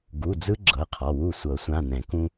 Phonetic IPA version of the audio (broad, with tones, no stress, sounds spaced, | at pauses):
ɡ u˩˧˩ d͡z ɯ˦ ɡ͡ǁ ɤ˩˧˩ qʰ ɔ˩˧˩ w u˥˩ sʷ ɤ˨˩˦ sʷ ã˩˧˩ n ɛ̃˨˩˦ k ũ˦